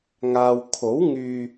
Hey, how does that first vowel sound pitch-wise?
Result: low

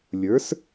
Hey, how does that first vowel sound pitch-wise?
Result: rising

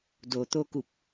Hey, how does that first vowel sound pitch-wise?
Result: low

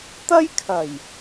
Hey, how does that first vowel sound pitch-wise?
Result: high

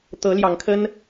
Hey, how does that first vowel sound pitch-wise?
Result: rising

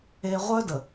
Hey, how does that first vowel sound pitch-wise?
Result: low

